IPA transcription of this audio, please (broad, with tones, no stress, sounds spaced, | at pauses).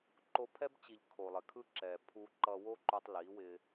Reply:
ǃ o˧ pʰ ɛ˦ b t͡ɕ i˨ ʎ kʰ o˨ lˠ ɪ˨ kʰ ɯ˦ ǁ ɛ˨ pʰ u˧ ǃ ʌ˧ w o˦ ǃ u˧ tˤ l i˨˦ w ɪ˧